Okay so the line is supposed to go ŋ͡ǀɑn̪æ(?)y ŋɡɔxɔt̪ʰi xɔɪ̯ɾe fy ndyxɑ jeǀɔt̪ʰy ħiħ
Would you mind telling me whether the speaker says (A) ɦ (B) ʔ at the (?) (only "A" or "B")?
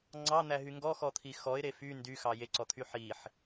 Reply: A